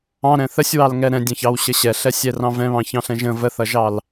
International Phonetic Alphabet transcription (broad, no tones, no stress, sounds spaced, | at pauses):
ɑ̃ ɾ ɛ̃ θ ə sʲ w ɑ l ŋ ɛ ɾ ɛ̃ dʲ ɑ̃ ç ɑ w ɕ ə ɕ ɛ ɬ ɛ sʲ ɛ r ɑ̃ v ɛ̃ β ɑ̃ ç ɑ̃ ɬ ɛ̃ ʒ ə̃ v ə θ ʌ ʒ ɑ l